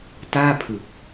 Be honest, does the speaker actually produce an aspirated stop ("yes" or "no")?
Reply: yes